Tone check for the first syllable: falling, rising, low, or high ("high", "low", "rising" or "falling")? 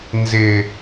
low